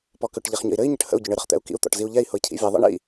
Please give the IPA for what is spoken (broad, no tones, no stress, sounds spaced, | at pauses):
p ɔ k ʏ ʈ ʎ ɛ χ ɲ ə̰ i̯ ɾ ɘ i̯ ɲ ə ʈ h ə̰ u̯ ɟ ʊ ɳ ɘ ɾ ə χ t̪ ɛ̰ u̯ k ḭ u̯ t̪ ɔ̰ ʈ z i u̯ ʎ ɛ i̯ h ʊ i̯ cʰ ḭ vʲ ɛ ðˤ ɛ̰ ɳ ḭ